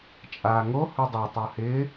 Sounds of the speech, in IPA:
t͡ʃʼ aː ŋ o h u dˤ ø tˤ o h ɪː

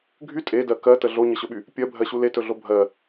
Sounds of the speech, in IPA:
ɡʱ y tʼ e d ɜ k ɜ t ə ɮ o ɲ ə ɕ ɵ ɓ y | pʲ ɜ bʱ ɜ ɕ u l e t ɵ ɮ o bʱ ɜ

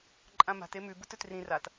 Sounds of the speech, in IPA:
ǃʼ ã m a̤ t e m ʉ b u t ɵ t r ĩ r a t

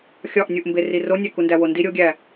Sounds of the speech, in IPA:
xʲ ɒ ʔ nʲ u ʔ m b e r i r o nʲ æ k u n d æ w o n d i ɾʲ o ɡʲ æ

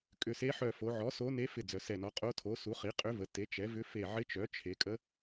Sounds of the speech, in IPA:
kʼ ʏ˧˩ s e˧˥ ħ œ˧˩ f o˩˧ ʕ ɔ˩˥ s o˧˥ n e˧˥ f ɪ˧˩ d͡z œ˩˧ s ɛ˧˩ n ɔ˩˥ qʼ o˧˥ tʰ o˩˥ s u˩˥ χ i˩˥ qʼ ʏ˧˥ v ə˩˧ t e˩˥ t͡ʃ ɛ˩˥ v ʏ˧˥ f e˧˩ ʕ ɪ˧˥ t͡ʃ œ˩˥ t͡ʃʰ e˩˧ kʼ ə˧˥

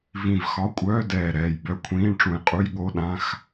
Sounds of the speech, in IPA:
v ĩ˧˩ v x ɒ˧˥˧ kʷʼ œː˧˥˧ d ɛː˧˩ ɾ ɛː˧˩ j b œ˧˥˧ kʷʰ ĩː˧˥˧ ɳ ʈ͡ʂ ũ˧˩ j qʼ u˧˥˧ j ɠ o˧˥˧ ɗ ã˧˥˧ x

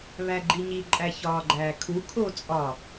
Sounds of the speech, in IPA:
β æ ɡ͡ǃ i ɲ i ǃʼ æ ç ɒː ɡ͡ǃ æː kʰ u kʰ o t͡sʼ ɒ

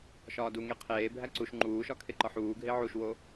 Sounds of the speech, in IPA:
ʃ ɒː d u ŋ e qʰ eː bʱ æ ǀ u ʃ ŋ͡ǃ uː ʃ ɒ kʰ e ǃ ɒ ħ uː ɡʱ e ʕ u ʃ w o

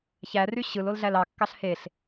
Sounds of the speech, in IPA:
ç æ r y ɕ ɯ l o l ɮ æ l ɑ kː ɑ ɬ h e ɬ

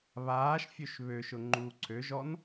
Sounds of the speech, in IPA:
β aː ʃ fʲ ø ʃ β ø ʃ ʊ ŋ͡ǃ uː ǀʰ ø ʒ ɔ n

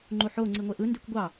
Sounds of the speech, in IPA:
ŋ͡ǃ u ħ o ŋ͡ǀ i ŋʷ e ʔ ɯ n d y kʷ ɡʷ ɑ

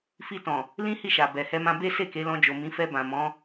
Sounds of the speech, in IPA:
f i˧ t ɔ̃˨ | l ĩ˦ h i˦˨ ʃ a˨ b ɛ˨ h ɛ˧ m ã˧ b e˦ s e˦˨ k e˨˦ l ɔ̃˧ d͡ʒ o˨ m ĩ˨˦ f ɛ˧ b ã˨ m ɔ̃˨˦

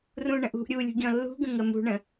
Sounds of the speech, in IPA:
r ũ ɳ ə̃ ʔ ṳ ʔ ɾʲ u lʲ ṳ ɡʲ ɔ̃ lː ṳ ɡ ə̃ ŋ ə m ṳ ɳ ə̃

